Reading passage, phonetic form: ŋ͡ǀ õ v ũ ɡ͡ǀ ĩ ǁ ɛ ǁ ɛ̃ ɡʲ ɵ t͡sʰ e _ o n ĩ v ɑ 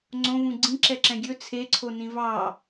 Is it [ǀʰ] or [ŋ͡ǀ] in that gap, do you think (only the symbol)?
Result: ǀʰ